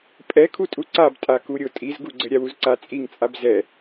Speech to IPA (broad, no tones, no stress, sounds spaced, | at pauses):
pʼ ɛ kʰ u tʼ u ǀ a b tʼ a k u ɾʲ o tʼ i z ɡ u ɡ͡ǀ ɘ ɾʲ a w u z ǀ a t͡sʼ i ŋ t͡sʼ a b z ɛ